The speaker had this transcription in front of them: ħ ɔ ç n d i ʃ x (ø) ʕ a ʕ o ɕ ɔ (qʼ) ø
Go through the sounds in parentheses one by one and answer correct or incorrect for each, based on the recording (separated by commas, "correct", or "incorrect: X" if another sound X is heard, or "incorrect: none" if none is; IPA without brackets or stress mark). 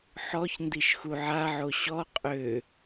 incorrect: u, correct